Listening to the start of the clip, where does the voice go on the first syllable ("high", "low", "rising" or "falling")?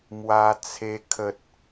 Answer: high